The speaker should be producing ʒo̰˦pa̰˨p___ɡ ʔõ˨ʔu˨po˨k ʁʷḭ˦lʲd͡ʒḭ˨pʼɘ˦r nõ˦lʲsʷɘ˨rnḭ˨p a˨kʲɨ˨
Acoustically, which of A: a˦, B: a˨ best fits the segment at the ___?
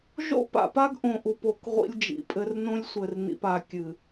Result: A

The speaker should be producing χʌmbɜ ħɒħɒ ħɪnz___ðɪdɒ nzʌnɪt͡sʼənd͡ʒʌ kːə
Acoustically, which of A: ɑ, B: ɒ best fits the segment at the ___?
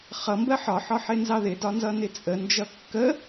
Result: A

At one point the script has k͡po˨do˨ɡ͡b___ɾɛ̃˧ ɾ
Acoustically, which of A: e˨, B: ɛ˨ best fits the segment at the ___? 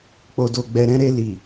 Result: B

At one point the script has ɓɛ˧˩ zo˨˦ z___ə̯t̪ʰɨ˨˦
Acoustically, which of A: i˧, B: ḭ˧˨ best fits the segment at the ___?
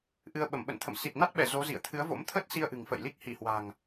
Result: B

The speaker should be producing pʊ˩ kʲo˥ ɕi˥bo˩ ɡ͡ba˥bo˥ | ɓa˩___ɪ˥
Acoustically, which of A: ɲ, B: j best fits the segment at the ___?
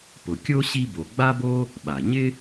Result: A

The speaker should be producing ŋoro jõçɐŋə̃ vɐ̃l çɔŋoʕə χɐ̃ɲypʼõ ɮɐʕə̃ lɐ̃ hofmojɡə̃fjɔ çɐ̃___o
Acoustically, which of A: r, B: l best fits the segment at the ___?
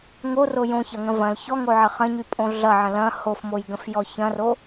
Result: A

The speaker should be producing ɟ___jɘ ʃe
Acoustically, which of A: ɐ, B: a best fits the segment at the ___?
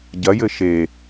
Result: A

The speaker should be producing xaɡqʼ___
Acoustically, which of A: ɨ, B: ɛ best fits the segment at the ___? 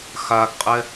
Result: B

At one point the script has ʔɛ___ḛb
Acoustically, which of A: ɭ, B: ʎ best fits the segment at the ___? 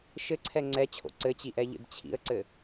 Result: B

